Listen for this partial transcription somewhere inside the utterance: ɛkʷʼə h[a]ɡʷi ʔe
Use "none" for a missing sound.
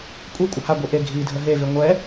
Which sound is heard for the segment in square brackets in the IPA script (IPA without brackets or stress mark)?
a